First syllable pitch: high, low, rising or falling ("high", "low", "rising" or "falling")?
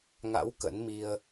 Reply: rising